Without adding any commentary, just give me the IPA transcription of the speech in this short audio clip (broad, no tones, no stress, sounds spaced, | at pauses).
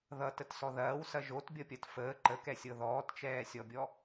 ð ʌ t ə t s ɔ ð ɐː w s ɐ ʒ o t bʲ ʌ pʲ ɐ t f əː ǃ ə k ɛ sʲ ɤ ð ɔː t t͡ʃ ɛː sʲ ɔ bʲ ɔ